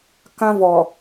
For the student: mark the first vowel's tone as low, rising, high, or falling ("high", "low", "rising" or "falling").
high